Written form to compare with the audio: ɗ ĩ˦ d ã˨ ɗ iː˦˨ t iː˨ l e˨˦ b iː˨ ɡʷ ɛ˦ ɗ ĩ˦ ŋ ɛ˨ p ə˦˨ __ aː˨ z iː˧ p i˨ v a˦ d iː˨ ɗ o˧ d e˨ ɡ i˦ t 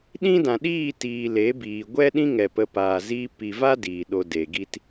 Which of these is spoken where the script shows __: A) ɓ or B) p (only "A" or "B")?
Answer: B